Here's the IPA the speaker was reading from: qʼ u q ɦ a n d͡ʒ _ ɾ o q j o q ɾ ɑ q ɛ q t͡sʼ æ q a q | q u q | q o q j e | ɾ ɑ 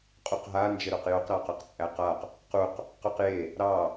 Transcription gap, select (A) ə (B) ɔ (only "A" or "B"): A